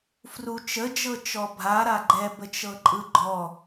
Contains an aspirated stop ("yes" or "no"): no